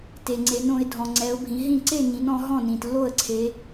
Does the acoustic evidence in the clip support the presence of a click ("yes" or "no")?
yes